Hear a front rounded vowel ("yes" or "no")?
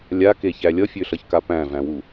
yes